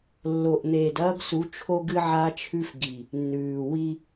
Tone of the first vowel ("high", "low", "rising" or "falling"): low